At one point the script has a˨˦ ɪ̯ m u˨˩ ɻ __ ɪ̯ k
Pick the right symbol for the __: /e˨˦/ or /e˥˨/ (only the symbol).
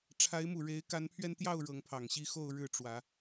e˨˦